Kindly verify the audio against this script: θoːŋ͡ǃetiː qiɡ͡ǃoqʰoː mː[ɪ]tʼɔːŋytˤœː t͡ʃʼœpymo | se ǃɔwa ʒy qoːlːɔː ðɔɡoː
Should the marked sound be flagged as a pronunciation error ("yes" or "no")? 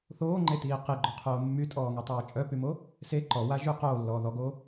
yes